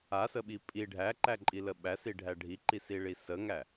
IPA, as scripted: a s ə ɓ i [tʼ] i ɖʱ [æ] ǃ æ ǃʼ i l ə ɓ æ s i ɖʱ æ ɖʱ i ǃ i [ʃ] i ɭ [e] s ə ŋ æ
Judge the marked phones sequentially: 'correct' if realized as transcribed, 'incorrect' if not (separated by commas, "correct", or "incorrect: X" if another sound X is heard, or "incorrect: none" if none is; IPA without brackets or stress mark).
incorrect: pʼ, correct, incorrect: s, incorrect: i